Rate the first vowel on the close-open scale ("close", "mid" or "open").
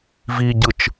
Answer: close